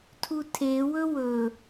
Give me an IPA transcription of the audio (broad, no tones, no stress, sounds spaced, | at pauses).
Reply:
tʰ u tʰ e w ɵ w ɵ